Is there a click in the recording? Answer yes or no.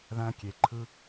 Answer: yes